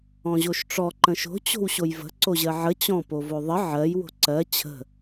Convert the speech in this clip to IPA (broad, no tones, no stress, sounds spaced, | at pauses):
ɔ̃ ʑ o ʃ ʈ͡ʂ ɔ ǃ ə̃ ʃ o̤ t͡ɕ o̤ w ɕ o j v ə̤ ǀ o ʑ ɜ ʕ ə t͡ɕ ɔ̃ p o v o ðˤ ə ʕ ɜ j w o̤ ǀ ɜ t͡ɕʰ ə̤